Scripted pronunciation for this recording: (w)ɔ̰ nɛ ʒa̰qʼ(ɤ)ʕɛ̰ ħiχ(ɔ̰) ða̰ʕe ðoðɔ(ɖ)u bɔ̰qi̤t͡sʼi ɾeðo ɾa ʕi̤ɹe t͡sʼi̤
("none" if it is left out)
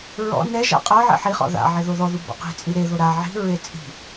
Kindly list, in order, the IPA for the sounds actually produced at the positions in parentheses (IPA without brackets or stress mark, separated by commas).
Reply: ɹ, ɤ, ɔ̰, ð